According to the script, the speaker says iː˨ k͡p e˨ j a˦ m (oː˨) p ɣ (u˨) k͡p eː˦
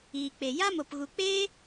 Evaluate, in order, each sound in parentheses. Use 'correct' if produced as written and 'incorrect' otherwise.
incorrect, correct

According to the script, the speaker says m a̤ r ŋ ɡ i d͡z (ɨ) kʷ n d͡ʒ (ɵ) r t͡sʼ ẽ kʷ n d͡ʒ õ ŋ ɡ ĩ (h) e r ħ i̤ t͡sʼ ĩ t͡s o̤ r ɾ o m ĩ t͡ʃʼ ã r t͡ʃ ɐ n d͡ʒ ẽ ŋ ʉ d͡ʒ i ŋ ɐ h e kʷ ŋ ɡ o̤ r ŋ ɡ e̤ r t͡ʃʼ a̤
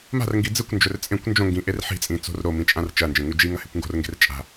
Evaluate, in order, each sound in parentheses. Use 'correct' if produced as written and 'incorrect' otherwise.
correct, correct, incorrect

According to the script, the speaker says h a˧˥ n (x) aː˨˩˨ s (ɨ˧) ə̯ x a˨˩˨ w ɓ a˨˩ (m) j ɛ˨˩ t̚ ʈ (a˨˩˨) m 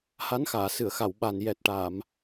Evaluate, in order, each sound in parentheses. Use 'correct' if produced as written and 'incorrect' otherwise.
correct, incorrect, incorrect, correct

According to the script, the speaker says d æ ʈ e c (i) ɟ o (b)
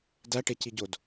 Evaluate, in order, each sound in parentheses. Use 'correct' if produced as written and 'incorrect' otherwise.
correct, incorrect

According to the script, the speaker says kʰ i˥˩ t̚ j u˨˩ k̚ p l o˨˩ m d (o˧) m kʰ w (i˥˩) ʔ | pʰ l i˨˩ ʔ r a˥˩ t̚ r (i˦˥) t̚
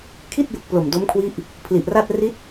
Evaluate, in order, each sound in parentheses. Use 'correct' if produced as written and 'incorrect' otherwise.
incorrect, incorrect, correct

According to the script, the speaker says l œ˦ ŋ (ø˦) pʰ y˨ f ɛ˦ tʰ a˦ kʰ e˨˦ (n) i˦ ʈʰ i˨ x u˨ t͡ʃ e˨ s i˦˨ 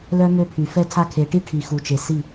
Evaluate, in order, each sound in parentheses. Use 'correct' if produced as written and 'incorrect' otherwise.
correct, incorrect

